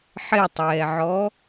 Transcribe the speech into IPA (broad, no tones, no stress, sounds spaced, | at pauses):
ħ ɪ tˤ ɛː ʕ ɔ